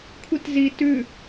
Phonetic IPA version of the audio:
kʷʰ i t z i t ʉ

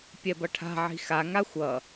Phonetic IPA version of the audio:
pʲ ɛ b ʌ ʈʰ a̤ ʕ i̤ x a ŋ a xʷ ʌ

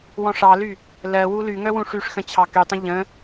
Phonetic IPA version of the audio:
w ɔ̃ ʂ ɑ l y | l ɜ w u l y ŋ œ w ũ ʂ y ʂ x ə̃ t͡ɕʰ ɑ k y tˤ ə̃ ʎ ə̃

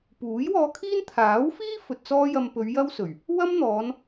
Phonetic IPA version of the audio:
p uː˨˥ j w ɔː˧ kʰ iː˥ n t̪ʰ aː˨˥ w f iː˥ f ɵ˨ t̚ t͡s ɔː˥ j ɐ˧ m p ɵ˨˧ ɥ j ɐ˥ w s ɵ˨˩ ɥ | w ɐ˥ m n̪ ɔː˨˧ n

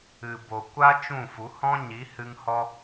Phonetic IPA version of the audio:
ɨ˨ b o˨ kʷ a˦ t͡ʃ ũ˦˨ f u˨˦ h ɔ̃˦ ɲ i˨˦ h ɨ˧ ŋ h ɔ˧

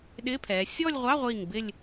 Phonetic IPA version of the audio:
ɗ ɪː˧˥˧ pʰ ɛː˩˧ sʲ ɔː˥˧ lʲ ʁʷ ɑ˧˥˧ ʁʷ iː˧˩ ŋ b ɪ˥˧ lʲ

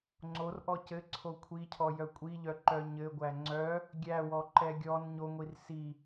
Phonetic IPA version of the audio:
ŋ͡ǀ o r ʔ ɔ c ɘ ǀʰ o kʷʰ i cʰ ɔ j œ kʷʼ i ʎ œ ǃ œ ɲ ɘ ɡʷ æ ŋ͡ǀ œ | ɡʲ æ w ɔ ǃ ɛ ɡʲ ɔ n ɲ o ŋʷ i r s i

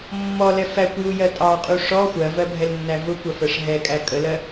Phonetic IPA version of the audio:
mː ɔ l ɛ f æ kʷ j u j ɜ tʼ ɑ qʼ u ʂ ɔ xʷ ɜ v ɜ bʱ ɛ l nː æ v ʊ kʷ ɜ f ɜ ʂ ɦ ɛ kʼ æ kʼ ə l ɜ

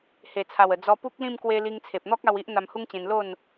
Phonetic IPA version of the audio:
h e˨˩ t͡sʰ a˨˩ w ə˨˩ d͡z ɔ˧ p u˦ k̚ l ĩ˥˧ m k w e˧ l i˧ ŋ t͡sʰ e˨ p̚ n̪ ɔ˦ k̚ a˧ w i˦ ʔ n̪ a˧ m h u˦ ŋ t͡ɕ ẽ˧ n l o˥˧ n

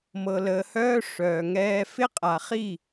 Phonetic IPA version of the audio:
m ɤ˨ l əː˨ h œː˦ ʂ œː˨ ŋ ɛː˦ f ɪ˦ qʼ a˨ χ i˦˨

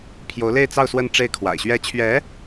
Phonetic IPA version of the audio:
pʰ j o˧˥ ʊ̯ l e˥˧ ɪ̯ t͡s ɑ˥˧ ʊ̯ s w ə˥˧ n ʈ͡ʂ e˥˩ ɪ̯ kʰ w a̰˨˩ ɪ̯ ɕ ɥ ɛ˧˥ t͡ɕʰ ɥ ɛ˧˥

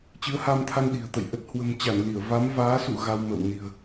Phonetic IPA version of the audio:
t͡ɕ ɨ˨˦ ə̯ h a˧ m t̪ʰ a˧ n ɗ i̤˨˩ ə̯ t̪ ə̰˧˨ j ʔ ə˨˩ t̚ h w ə̤˨˩ m t͡ɕ a˧˩ n l i˧˩ ə̯ v a˨˦ m v aː˨˦ s ṵ˧˨ ɣ a˧ w m ə̰ː˧˨ w n i̤˨˩ ə̯

